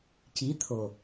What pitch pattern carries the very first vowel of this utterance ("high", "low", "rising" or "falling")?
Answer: rising